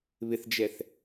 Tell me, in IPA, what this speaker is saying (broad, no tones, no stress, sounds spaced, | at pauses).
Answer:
β ɪ θ d͡ʒ ɛ θ